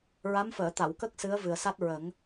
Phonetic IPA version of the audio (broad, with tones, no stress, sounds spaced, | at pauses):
ɹ a˧˥ m f əː˨˩˨ t̪ a˨˩˨ w k ə˦˥ k̚ s ɨ˧˥ ə̯ v ɨ˨˩ ə̯ s a˦˥ t̚ ɹ ə˨˩˦ ŋ